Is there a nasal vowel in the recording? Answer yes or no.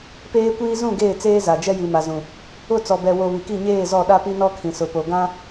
yes